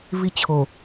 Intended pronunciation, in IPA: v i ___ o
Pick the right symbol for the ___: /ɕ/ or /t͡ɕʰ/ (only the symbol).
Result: t͡ɕʰ